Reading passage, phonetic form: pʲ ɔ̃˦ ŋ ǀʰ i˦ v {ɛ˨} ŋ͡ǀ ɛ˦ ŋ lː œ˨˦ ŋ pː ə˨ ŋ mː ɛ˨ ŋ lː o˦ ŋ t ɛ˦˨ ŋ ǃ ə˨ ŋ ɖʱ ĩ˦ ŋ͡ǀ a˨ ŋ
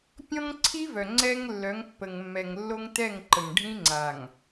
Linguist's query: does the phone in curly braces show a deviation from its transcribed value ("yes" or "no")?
yes